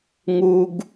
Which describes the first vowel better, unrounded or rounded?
rounded